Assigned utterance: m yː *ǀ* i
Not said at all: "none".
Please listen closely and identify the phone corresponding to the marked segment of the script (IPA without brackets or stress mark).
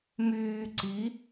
ǀ